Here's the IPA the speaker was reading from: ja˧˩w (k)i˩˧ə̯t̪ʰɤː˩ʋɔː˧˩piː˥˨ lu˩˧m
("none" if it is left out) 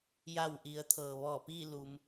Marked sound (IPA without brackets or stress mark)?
ʔ